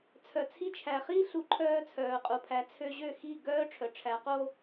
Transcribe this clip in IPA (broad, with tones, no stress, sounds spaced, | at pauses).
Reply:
t͡sʰ œ˩ t͡sʰ i˧ t͡ʃʰ æ˩ χ i˥ ɬ u˩˥ ǃʰ œː˧ t͡sʰ œː˩ qʼ u˩ pʰ æ˩˥ t͡sʰ ø˧ ʑ ø˥˩ x i˥˩ ɡ œː˥ ʈ͡ʂʰ œ˩ ʈ͡ʂʰ æ˩˥ q o˥